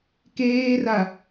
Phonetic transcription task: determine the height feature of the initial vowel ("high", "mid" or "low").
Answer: mid